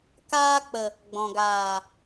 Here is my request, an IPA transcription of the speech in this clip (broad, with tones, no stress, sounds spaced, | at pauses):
k aː˧ k͡p ə˨ | ɡ͡b ɔ̃˨ ɡ aː˨